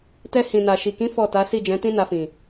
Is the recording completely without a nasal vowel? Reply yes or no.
no